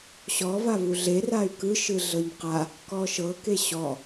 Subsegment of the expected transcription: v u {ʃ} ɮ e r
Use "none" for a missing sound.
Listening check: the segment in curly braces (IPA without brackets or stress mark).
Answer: none